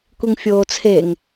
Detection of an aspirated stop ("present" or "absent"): present